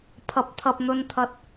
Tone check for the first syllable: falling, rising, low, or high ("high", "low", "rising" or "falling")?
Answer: rising